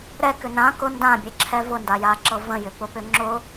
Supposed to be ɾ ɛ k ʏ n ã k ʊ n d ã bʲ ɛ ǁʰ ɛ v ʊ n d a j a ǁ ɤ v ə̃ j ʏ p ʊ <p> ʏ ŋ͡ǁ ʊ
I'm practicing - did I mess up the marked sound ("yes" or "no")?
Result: no